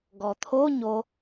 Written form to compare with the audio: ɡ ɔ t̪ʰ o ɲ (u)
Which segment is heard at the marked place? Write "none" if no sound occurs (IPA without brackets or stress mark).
o